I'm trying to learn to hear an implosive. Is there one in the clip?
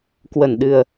yes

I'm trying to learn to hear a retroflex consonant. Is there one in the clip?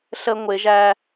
no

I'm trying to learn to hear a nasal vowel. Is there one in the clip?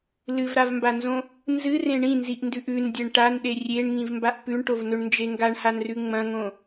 yes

